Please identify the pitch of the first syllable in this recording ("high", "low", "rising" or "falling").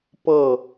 falling